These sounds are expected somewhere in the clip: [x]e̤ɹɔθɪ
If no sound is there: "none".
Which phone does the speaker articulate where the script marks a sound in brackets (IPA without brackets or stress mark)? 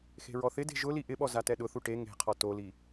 x